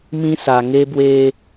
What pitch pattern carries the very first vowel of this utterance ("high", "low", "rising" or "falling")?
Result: high